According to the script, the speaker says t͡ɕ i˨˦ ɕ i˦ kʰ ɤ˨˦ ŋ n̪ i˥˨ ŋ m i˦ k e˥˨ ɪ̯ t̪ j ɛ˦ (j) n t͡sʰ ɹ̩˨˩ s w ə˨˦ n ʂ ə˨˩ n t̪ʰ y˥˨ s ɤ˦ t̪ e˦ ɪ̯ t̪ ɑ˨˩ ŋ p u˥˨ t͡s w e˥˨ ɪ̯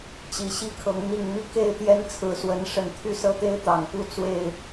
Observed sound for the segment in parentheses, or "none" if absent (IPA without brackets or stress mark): none